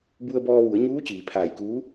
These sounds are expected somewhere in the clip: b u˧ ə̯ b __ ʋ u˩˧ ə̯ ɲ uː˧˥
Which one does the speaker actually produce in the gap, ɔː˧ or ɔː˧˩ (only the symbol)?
ɔː˧